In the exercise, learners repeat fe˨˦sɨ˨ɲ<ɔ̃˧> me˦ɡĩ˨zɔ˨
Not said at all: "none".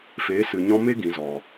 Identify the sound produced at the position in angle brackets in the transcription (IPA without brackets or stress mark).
ɔ̃˧